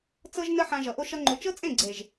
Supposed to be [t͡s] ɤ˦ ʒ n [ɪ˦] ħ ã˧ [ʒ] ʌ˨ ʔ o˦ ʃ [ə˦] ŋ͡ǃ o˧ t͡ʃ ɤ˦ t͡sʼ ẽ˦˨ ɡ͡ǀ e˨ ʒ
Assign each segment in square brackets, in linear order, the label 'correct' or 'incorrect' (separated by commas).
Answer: correct, incorrect, correct, incorrect